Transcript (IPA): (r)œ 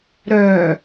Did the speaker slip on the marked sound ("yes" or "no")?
yes